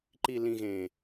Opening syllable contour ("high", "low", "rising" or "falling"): low